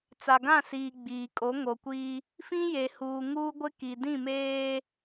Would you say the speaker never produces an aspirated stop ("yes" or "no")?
yes